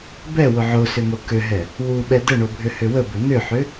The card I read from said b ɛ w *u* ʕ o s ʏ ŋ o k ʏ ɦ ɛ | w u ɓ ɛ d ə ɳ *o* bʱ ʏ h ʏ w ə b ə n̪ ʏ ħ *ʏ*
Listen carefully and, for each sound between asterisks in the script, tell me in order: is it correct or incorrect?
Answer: incorrect, correct, correct

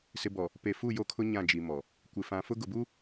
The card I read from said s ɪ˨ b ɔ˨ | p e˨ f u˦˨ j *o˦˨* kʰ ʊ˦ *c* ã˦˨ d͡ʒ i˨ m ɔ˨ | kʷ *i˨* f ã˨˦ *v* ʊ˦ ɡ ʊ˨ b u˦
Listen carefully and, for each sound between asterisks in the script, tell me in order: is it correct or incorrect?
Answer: incorrect, incorrect, incorrect, incorrect

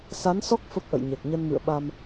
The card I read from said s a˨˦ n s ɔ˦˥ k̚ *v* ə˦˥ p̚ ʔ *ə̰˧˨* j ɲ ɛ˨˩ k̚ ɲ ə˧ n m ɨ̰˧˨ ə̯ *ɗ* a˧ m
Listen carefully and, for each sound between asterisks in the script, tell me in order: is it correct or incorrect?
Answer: incorrect, correct, incorrect

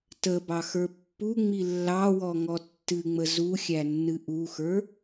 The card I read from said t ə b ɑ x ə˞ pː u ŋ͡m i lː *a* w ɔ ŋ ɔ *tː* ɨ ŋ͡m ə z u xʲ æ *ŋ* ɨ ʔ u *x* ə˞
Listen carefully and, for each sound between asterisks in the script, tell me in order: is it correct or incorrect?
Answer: incorrect, correct, incorrect, correct

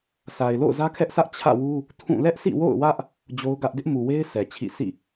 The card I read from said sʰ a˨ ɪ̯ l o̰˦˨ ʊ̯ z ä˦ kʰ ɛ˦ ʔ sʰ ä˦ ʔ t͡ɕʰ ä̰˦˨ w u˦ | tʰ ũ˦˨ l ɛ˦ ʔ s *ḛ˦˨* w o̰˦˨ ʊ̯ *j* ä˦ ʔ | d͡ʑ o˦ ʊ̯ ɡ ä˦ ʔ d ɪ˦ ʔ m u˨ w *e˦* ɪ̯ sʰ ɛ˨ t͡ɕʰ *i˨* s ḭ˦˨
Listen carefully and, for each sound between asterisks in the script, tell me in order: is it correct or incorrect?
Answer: incorrect, incorrect, correct, incorrect

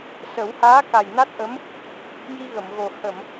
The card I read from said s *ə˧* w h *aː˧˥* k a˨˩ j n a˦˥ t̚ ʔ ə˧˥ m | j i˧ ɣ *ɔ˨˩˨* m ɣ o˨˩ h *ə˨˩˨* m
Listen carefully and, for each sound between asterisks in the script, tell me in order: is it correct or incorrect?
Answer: incorrect, correct, incorrect, correct

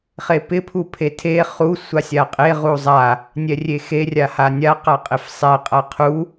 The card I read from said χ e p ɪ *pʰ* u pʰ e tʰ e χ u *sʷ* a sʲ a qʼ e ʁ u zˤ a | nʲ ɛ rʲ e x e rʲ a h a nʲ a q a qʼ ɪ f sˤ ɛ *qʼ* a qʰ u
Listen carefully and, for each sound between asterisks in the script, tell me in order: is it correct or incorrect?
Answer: correct, correct, correct

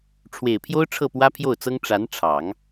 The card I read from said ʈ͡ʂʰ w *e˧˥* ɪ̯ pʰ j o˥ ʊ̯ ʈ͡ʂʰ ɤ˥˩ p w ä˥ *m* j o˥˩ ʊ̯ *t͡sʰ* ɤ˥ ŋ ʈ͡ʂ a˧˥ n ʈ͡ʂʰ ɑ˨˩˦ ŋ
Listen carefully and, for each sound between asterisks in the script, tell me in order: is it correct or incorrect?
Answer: incorrect, incorrect, incorrect

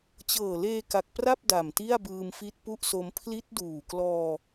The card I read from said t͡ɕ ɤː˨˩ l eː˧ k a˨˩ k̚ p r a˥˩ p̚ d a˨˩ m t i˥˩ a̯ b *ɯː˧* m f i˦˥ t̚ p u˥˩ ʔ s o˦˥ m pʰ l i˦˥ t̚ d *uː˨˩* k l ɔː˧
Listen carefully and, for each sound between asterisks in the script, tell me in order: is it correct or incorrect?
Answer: correct, correct

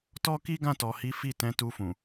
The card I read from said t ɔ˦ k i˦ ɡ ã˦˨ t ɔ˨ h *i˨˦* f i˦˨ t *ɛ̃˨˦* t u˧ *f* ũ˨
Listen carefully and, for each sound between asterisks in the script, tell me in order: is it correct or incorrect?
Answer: correct, correct, correct

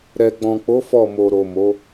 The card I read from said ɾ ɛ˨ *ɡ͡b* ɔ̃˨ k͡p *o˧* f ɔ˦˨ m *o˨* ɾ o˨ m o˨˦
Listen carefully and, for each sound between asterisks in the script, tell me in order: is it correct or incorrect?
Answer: correct, incorrect, correct

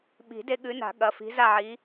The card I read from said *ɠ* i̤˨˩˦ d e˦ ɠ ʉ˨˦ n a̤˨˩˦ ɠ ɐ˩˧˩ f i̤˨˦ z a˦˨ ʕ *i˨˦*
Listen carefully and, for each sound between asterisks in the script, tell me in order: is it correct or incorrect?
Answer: incorrect, correct

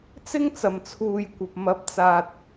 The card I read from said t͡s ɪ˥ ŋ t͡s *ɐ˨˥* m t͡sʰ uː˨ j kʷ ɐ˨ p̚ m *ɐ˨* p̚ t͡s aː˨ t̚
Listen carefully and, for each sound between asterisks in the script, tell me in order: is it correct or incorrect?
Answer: incorrect, incorrect

